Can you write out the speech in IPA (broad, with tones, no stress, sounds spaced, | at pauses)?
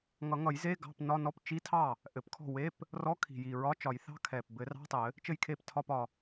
ŋ ʌ˨˩˦ ŋ ʌ˨˩˦ j z e˧˥˧ ɡ ɑ̤˧˥˧ p n ɒ˧˥˧ n ɔ˧˥˧ p t͡ʃ i˧˥˧ tʰ ɑ˥˩ | ʔ ɘ˨˩ p kʰ ɔ̤˥˩ w e˧˥˧ p | r ɔ˧˥˧ kʰ i̤˨˩ j i˨˩ ɹ ɒ˧˥˧ t͡ʃ ɒ˨˩˦ j θ ɑ̤˧˥˧ kʰ ɛ˨˩ p b ɘ˨˩˦ r ɑ̤˧˥˧ tˤ ɘ˨˩˦ | t͡ʃ ɘ˥˩ j kʰ e˥˩ p tʰ ɒ˧˥˧ p ɒ˨˩